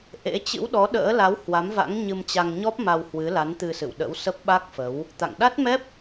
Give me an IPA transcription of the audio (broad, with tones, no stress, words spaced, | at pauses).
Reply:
ʔḛ˧˥ t͡ɕɨ̰˧˥wɗɔ˨˦ɗə̰ː˧˥la˨˦w hwa˨˦mva̰˧˥ŋ ɲɨ˧mt͡ɕa˧ŋɲɔ˦˥p̚ ma˧whwɨ˨˦la˨˦n t̪ɨ˧sɨ̰˧˨wɗə̰˧˥w sə˦˥p̚ɓa˦˥k̚fə˨˦w | t̪a̰˧˨ŋɗa˦˥t̚mɛ˦˥p̚